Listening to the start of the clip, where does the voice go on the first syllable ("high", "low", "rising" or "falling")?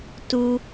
low